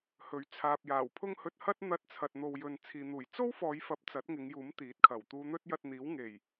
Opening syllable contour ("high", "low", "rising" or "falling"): rising